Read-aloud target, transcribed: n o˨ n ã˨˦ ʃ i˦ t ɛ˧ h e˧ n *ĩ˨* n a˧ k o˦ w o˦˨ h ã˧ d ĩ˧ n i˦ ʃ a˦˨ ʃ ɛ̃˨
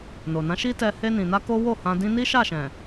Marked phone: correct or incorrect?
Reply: correct